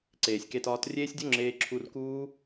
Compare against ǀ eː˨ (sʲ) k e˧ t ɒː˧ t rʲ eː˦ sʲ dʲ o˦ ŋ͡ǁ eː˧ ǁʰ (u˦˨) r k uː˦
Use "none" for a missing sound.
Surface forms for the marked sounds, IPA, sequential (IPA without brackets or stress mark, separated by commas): sʲ, u˧